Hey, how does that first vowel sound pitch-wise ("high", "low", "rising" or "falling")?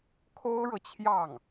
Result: high